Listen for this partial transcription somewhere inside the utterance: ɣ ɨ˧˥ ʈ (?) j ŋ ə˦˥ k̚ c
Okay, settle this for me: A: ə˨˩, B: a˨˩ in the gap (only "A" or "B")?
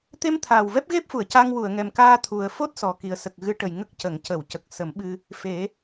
A